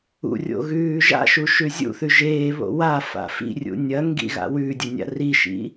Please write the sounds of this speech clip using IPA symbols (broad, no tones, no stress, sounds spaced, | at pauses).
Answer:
ṵ rʲ o̰ ɣ ʉː ʒ a̰ ʃ u ʃ ʉ zʲ ṵ θ ʉ ʒ eː β o̰ w a f a̰ f ḭ rʲ ṵ nʲ ɐ ŋ ɡ ḭ ɣ a̰ w ʉ dʲ ɵ nʲ a̰ r i ʃ ḭ